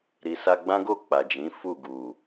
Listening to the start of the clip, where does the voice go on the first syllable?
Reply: low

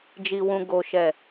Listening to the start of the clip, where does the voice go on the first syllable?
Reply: low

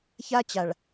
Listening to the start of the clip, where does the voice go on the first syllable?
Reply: high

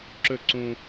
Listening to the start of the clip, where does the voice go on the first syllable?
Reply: falling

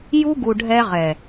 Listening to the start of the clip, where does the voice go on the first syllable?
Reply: high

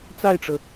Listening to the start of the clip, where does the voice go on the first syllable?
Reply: falling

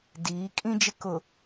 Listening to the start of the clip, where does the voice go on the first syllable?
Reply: rising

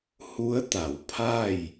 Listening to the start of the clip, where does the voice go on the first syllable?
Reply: rising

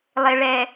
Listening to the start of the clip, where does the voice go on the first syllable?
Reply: low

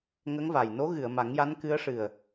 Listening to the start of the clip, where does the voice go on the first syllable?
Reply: rising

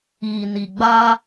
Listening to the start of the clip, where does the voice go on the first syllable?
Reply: low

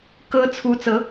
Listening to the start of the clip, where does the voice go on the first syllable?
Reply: rising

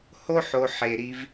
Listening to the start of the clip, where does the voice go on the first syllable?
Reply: high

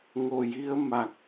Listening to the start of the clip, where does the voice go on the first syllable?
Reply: low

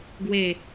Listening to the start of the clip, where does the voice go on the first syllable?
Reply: falling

